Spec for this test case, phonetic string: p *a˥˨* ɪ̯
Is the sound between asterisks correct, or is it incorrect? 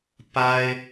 incorrect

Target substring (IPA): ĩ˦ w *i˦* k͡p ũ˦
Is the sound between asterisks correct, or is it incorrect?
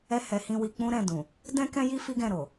incorrect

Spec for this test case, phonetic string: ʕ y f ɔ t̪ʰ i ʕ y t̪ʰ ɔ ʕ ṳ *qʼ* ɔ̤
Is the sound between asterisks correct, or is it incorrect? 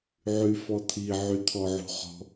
incorrect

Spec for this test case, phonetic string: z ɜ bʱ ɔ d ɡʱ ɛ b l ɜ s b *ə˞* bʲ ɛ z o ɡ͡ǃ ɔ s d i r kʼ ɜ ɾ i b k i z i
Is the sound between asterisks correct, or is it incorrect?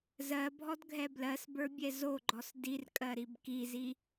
correct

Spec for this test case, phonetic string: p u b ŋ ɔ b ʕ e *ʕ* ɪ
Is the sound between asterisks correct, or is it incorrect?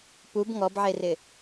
incorrect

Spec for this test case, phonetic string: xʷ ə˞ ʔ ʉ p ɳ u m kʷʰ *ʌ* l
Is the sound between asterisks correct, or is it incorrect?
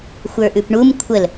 incorrect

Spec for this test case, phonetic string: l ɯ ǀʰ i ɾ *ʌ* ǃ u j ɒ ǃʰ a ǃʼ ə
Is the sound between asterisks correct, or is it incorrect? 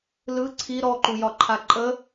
incorrect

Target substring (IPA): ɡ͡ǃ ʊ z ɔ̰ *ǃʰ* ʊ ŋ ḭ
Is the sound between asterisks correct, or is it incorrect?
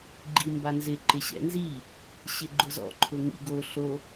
correct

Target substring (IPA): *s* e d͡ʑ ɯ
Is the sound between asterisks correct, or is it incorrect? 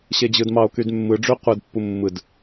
incorrect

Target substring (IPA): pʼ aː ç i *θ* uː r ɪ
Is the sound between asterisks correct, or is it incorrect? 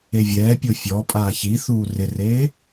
correct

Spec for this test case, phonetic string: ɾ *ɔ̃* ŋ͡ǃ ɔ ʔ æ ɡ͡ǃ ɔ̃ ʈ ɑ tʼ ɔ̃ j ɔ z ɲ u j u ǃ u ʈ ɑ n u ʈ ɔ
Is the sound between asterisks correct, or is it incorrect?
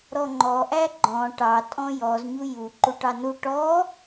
incorrect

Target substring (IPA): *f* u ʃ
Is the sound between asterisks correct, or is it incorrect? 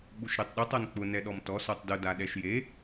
incorrect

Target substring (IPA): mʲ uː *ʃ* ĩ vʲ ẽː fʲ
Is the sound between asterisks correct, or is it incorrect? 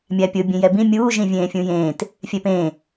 incorrect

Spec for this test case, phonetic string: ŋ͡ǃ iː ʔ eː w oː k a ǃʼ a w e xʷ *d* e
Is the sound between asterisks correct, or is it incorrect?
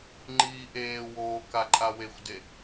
correct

